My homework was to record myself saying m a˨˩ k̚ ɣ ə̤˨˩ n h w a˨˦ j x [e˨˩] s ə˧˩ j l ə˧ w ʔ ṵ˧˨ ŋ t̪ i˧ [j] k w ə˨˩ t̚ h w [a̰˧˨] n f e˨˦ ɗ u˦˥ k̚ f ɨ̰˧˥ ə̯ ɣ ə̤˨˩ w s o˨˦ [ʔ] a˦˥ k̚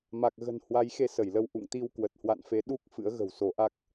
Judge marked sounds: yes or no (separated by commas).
no, no, yes, yes